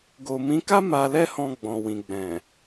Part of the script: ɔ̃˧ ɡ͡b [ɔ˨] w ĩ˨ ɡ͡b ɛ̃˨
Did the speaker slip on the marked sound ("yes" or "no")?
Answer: yes